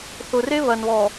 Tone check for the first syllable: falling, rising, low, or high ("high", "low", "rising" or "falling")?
low